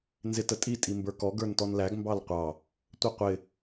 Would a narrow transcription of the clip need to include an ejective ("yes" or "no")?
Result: yes